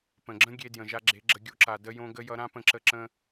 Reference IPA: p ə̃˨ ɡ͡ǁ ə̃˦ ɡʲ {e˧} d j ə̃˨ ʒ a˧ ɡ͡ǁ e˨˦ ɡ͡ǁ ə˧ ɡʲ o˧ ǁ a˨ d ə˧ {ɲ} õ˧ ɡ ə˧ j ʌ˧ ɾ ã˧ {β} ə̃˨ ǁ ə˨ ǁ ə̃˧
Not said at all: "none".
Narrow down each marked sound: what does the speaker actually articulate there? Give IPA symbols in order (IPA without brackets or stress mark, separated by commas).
e˧, j, p